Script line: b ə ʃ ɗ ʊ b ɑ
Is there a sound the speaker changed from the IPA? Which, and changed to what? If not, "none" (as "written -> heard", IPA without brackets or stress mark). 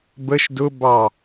ɗ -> d